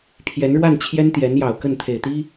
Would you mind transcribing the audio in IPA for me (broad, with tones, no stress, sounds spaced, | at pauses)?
pʰ j ɛ˧˥ n ɻ w a˥˩ n t͡ɕʰ j ɛ˥ n t̪ j ɛ˧˥ n j ɑ˨˩ ʊ̯ k ə˥˩ n t̪ʰ e˨˩ ɪ̯ t̪ i˥